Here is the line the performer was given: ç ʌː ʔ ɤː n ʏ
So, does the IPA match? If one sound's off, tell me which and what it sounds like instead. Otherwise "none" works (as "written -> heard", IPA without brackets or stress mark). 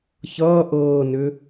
none